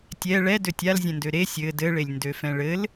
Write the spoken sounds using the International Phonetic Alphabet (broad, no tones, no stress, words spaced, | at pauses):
tʲɛ ɭɛ døtʲalzʲɛ̃ndø ɾe sʲɘ dɘɭelʲ ndøfɛ̃ɭɘl